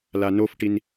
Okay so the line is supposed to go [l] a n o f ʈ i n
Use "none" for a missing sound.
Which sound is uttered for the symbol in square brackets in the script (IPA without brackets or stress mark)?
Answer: l